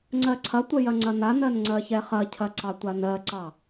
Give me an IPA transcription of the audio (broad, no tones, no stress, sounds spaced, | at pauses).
ŋ͡ǀ ɜ ǀʰ ɐ tʷ ə j ɐ ŋ͡ǀ ɐ n a n ɜ n ŋ͡ǀ ɜ ç ɛ χ ɐ cʰ ɐ ǀ ɑ tʷ a n ɜ ǀ ɑ